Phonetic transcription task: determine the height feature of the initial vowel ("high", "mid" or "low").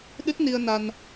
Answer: high